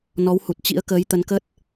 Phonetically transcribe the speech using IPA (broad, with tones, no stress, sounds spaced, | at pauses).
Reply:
n ɔ˨˦ w h u˨˩ t̚ t͡ɕ ḭ˧˥ ə̯ k əː˨˦ j t̪ ə˨˦ n k ə˦˥ t̚